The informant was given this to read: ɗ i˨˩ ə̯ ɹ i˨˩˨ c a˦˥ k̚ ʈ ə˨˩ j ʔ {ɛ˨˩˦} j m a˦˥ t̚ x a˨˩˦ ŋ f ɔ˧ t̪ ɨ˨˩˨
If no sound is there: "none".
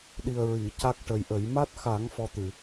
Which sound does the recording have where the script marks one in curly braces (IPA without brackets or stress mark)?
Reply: ə˨˩˦